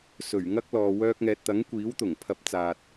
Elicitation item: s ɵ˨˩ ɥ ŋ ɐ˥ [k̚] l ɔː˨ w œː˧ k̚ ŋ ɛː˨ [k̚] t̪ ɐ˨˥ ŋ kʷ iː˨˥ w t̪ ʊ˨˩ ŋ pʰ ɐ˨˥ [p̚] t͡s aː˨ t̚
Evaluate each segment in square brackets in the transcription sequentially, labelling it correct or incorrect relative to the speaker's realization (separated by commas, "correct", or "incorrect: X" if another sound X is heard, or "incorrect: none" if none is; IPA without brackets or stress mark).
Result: correct, incorrect: t̚, correct